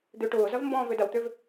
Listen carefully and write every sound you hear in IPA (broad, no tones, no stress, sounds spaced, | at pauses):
d̪ ø ʈ ʊː z ɐ v m b ɔ̃ː v ø d ɐ w t̪ ø v